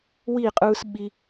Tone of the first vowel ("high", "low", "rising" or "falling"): falling